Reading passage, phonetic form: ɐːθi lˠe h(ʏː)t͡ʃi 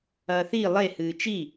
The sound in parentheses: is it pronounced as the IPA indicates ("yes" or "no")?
no